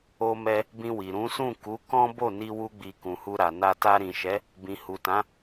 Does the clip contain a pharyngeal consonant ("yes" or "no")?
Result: no